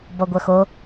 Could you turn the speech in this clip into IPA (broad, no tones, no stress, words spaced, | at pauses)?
bɔɡʷœxo